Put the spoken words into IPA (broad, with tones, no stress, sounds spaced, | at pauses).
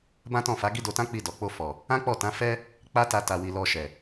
b ã˦ t ɔ̃˦˨ f a˨˦ ɡ i˦ d o˧ t ã˦ k͡p i˧ d ɔ˨ k͡p o˧ f ɔ˨ | ã˦ k͡p ɔ˦˨ t ã˨˦ f ɛ˦ | k͡p a˦ t a˧ t a˨ w i˨ l ɔ˧ ʃ ɛ˨